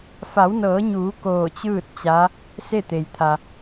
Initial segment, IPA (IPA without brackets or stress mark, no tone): f